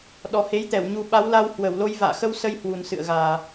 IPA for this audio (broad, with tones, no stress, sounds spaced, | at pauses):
ɗ ɔ˨˩ h e˨˦ j t̪ ɛ˧˩ w ɲ u˧ ɓ a˨˦ w l a˧ w h w ə˧˩ w l o˧ j v a̰ː˧˨ x ə˧ w s ə˧ j h w u˨˩ n s ɨ̰˧˨ ə̯ ɣ aː˨˩